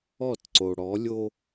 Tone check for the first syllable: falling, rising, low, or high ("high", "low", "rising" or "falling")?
falling